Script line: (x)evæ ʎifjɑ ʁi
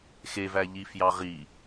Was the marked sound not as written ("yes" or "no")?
no